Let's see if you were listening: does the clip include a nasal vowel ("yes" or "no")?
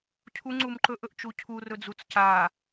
no